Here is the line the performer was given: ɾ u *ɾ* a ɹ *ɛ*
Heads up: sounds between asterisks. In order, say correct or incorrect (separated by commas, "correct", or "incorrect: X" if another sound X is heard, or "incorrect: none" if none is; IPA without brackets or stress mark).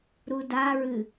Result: incorrect: d, incorrect: ɨ